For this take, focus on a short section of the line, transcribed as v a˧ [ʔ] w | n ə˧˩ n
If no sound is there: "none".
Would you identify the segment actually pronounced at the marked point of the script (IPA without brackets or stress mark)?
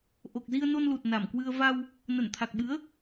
none